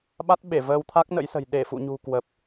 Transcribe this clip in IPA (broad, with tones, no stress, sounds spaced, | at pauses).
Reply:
ɓ a˦˥ t̚ ɓ e˧˩ v əː˧ w t̪ʰ a˦˥ k̚ n ə̰˧˥ j s ə̤˨˩ j ɗ e˧˩ f ṵ˧˨ ɲ ṳ˨˩ k w ə˨˩ p̚